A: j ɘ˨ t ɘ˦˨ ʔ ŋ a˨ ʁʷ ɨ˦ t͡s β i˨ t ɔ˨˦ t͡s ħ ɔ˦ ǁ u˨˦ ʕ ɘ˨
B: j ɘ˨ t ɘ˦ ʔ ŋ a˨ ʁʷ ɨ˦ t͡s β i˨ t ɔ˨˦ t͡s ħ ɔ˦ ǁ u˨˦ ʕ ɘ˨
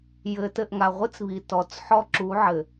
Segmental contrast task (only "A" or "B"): A